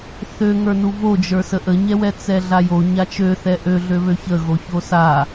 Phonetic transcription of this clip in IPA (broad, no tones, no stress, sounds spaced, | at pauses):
θ ø ŋ ə˞ n u v o d͡ʒ ə˞ s ə ʔ ə ɲ ɛ w ɛ t͡s ɛ ɮ a j o ɲ a t͡ʃ ø θ ɛ ʔ ø ɮ ø β ø ç ə ɣ o ç o s a